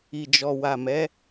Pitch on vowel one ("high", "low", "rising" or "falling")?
low